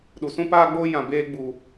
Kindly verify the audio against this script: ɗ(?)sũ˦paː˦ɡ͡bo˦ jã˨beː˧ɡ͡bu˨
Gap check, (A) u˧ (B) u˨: B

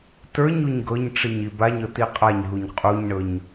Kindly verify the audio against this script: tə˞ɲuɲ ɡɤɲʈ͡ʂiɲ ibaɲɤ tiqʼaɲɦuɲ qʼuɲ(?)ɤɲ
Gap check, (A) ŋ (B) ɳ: B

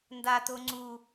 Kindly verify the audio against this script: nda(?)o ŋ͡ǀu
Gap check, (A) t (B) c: A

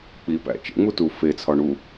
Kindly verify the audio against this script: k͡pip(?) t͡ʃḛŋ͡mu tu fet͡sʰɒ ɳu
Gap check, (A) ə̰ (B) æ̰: B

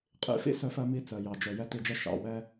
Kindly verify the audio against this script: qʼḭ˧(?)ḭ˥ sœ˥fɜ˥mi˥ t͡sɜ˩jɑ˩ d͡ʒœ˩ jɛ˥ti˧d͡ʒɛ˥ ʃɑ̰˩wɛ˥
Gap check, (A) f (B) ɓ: A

